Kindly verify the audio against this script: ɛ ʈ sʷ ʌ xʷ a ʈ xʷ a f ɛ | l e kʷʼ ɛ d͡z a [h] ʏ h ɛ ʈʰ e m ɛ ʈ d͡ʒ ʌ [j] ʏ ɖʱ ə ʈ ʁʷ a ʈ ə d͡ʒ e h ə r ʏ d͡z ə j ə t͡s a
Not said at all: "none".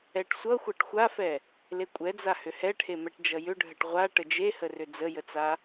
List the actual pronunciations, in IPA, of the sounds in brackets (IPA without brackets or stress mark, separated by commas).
h, j